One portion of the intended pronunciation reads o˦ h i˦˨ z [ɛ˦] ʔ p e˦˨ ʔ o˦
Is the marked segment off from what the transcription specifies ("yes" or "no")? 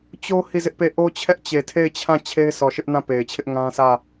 yes